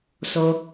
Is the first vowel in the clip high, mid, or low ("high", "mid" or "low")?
mid